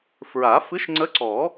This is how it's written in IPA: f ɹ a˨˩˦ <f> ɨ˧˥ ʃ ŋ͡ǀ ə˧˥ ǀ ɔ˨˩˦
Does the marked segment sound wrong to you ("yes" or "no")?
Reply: no